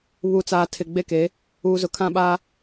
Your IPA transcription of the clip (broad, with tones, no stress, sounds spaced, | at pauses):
β u˨ t͡s aː˨ tʰ ɪ˨ ɡ͡b e˦ k e˨˦ | uː˨ z ʊ˨ kʰ ã˦ ɓ aː˦